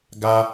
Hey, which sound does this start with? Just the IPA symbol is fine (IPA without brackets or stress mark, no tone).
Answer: ɡ